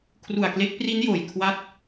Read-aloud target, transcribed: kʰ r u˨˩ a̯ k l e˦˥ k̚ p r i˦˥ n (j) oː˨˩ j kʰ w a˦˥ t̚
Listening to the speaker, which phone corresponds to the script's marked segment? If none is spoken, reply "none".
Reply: j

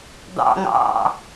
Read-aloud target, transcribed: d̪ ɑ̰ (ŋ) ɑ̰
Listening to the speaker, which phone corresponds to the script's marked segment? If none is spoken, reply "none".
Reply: ŋ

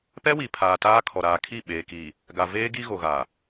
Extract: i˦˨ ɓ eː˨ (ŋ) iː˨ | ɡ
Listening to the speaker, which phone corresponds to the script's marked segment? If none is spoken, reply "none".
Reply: k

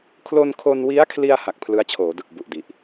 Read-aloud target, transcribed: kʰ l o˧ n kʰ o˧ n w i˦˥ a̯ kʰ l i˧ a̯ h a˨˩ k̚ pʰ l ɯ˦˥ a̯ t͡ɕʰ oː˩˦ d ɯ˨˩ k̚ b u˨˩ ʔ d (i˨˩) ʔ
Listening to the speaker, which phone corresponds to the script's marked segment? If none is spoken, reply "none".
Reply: i˨˩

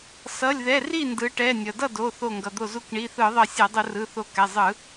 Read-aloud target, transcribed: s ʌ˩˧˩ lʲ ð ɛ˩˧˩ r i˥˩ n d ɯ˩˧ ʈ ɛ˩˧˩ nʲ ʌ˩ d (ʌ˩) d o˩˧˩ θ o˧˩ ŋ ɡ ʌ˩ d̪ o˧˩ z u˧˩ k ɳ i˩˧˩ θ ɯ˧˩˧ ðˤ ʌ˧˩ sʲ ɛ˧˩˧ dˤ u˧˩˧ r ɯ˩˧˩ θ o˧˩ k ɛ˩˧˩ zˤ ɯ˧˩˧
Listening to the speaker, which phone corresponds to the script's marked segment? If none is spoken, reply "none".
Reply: ʌ˥˩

